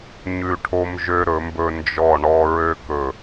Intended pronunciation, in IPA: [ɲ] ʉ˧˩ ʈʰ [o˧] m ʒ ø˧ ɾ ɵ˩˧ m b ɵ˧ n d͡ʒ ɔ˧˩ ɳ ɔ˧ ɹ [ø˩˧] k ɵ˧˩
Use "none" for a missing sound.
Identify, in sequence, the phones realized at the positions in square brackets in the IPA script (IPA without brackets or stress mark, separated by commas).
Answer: ɲ, o˧, ø˧